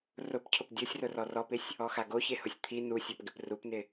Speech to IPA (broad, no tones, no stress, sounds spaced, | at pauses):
r ʊ p cʰ ʊ p dʲ o sʲ r ʊ r ɔ r ɔ p ɪ sʲ | ɔ x a ɡ o ç e h ʊ sʲ t̪ʰ i n u sʲ ɔ p ɡ ɪ p r u p n ɪ